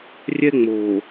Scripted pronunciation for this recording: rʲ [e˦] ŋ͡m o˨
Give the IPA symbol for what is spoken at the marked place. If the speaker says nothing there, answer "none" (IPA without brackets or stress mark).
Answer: ɛ˦